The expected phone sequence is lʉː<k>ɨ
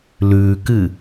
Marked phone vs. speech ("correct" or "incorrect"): correct